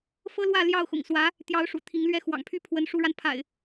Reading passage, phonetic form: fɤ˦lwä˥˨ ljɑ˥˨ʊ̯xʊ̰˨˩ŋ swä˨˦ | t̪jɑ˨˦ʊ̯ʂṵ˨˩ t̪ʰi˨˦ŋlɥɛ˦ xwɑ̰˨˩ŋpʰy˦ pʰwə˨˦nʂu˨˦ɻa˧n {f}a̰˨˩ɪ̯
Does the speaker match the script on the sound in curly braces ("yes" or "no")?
no